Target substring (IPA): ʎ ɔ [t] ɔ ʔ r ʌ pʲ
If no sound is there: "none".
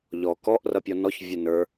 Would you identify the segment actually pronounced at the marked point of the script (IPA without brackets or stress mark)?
k